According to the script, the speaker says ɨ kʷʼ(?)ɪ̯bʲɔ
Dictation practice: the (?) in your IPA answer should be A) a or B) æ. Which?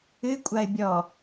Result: A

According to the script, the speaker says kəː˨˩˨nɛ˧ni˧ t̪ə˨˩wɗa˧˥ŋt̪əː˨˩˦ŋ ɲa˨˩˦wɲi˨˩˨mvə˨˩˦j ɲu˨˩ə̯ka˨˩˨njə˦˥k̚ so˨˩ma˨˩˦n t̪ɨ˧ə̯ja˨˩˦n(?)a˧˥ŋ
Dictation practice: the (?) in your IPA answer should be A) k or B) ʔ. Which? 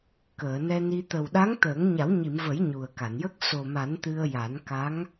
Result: A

